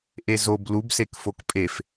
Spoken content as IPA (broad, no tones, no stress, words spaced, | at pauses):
ʔezob lub sekfokpʼef